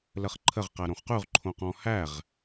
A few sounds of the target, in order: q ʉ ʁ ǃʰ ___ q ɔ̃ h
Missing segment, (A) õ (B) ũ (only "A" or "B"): A